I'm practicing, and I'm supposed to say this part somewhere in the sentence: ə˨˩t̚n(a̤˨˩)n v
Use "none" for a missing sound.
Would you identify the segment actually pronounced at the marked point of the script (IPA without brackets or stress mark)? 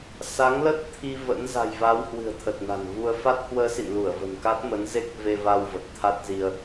a̤˨˩